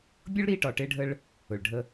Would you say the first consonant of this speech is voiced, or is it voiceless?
voiced